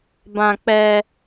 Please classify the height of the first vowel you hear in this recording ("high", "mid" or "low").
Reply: low